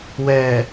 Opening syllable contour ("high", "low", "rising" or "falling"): low